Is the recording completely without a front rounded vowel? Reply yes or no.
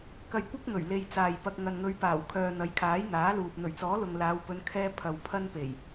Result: no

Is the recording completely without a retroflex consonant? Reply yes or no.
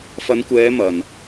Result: yes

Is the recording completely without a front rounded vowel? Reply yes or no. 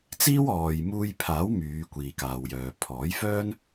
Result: no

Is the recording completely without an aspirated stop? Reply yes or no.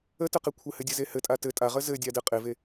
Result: no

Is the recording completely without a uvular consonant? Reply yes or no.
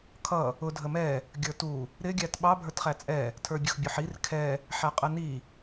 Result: no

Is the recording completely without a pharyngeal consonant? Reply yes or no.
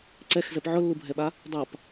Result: no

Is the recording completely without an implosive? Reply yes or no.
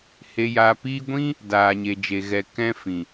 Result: yes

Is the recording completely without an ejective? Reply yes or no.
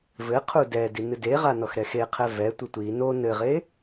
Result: yes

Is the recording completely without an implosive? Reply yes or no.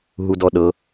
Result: no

